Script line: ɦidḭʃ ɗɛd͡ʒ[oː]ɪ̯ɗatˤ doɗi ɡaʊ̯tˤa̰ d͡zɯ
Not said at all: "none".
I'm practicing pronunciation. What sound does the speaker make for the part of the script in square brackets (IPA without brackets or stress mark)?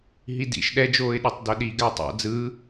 oː